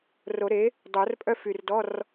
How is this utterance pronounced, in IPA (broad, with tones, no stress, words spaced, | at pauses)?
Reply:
ro˨˩˦ɾe˩˥ | dˤo˨˩˦rpʼœ˥fy˨˩r dɔ˧˥˧r